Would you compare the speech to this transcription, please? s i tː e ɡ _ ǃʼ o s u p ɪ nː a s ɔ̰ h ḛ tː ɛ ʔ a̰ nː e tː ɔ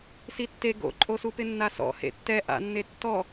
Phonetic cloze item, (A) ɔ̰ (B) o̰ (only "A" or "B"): B